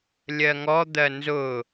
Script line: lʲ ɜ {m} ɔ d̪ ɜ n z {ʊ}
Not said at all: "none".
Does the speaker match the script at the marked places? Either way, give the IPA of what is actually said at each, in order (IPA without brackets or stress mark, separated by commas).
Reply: ŋ, ʊ